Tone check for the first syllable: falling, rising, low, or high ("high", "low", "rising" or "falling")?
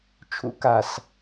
high